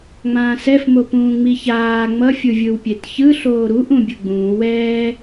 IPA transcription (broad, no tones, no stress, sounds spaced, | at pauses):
ŋ͡m ãː s ɛ f m o p ũː ŋ͡m i ç aː ŋ͡m ʌ fʲ ɯ vʲ ɯ w pʲ e t ç ɯ ɬ oː ɾ u ʔ ũ bʲ ɯ ɡ͡b ũː w ɛː